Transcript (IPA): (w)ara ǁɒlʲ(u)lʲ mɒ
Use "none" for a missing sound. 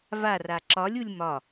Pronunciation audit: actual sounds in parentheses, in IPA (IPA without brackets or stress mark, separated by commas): v, u